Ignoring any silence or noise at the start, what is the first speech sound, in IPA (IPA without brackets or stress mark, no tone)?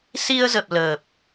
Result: s